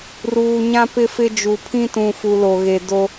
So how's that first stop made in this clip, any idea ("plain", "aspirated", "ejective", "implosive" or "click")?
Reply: plain